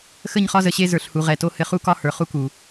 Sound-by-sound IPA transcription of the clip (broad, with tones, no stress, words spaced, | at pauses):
xə˦˨ɲχɒ˦zə˨ɕe˦ zə˞˨ɬhu˨ʁɛ˨to˦ hɘ˨χu˦kɒ˦ hə˞˨χu˦ku˨